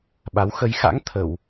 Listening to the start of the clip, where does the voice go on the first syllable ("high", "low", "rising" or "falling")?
rising